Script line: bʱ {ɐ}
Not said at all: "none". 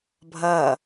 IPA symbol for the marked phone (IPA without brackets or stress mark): ɐ